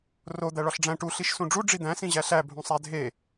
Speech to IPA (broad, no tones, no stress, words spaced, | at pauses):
ro d̪æɭɒɬɖ͡ʐæ̃ ʈu ɬiʃsũɖ͡ʐu ɖ͡ʐid̪æ̃ sĩʑæɬæ bʱũsˤædʱe